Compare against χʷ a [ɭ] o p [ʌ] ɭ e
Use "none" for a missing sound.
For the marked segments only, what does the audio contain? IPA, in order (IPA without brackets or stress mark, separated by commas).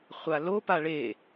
l, a